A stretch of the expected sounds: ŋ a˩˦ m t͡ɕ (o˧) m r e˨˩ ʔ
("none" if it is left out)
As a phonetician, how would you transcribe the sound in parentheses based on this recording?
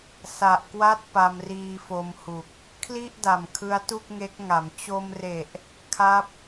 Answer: o˧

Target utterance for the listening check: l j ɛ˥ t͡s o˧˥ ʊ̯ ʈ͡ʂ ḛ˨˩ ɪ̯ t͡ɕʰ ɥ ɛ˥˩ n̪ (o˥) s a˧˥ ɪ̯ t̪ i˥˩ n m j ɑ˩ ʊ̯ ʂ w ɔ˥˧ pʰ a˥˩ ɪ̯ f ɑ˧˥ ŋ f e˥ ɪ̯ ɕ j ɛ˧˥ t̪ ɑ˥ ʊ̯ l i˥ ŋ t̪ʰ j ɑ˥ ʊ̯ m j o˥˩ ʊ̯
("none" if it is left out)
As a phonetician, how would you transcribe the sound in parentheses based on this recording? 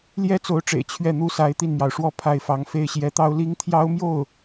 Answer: u˥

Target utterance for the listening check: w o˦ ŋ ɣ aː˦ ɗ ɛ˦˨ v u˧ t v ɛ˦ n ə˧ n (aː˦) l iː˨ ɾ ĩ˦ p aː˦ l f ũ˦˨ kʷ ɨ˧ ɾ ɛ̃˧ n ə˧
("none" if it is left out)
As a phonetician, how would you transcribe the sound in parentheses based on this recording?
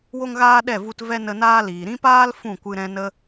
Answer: aː˦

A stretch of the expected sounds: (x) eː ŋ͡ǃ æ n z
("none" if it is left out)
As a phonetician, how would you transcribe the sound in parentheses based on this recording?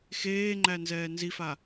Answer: x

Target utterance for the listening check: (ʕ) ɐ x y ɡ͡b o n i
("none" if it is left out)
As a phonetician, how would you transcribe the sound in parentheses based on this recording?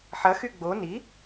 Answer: ħ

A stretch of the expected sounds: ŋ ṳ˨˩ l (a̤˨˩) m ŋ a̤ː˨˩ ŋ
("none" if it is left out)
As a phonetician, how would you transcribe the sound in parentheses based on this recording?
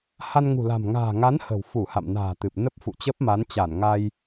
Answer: a̤˨˩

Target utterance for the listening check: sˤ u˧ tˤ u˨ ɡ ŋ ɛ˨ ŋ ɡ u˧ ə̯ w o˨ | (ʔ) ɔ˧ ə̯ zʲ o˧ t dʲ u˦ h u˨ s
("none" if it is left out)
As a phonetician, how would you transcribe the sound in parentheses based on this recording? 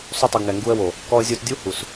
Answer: k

